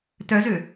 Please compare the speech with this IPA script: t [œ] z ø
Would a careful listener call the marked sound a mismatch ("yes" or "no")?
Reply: no